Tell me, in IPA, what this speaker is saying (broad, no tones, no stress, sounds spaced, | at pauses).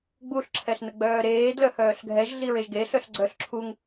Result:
ɡ͡b u ɬ ǁʰ ɛ ɬ n ə ɡ͡b œː ɾ eː d l œ h œː ɬ ɡʱ ɛ ʒ ɮ i ɹ e ʒ ɡ e ɬ œ ɬ ɡ͡ǀ œ ɬ ǁʰ u ŋ